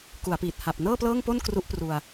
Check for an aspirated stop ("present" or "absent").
absent